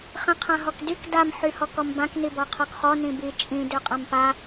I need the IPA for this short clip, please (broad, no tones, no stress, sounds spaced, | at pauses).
χ ĩ qʰ ã ɦ ɔ k d y k d a m ħ y h ɔ k ɔ m b ã k n i b ɔ qʰ ɔ k χ ɔ n ĩ b i t͡ʃʼ ĩ d ø qʼ ã m p a